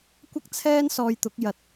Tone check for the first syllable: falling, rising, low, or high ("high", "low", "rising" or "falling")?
high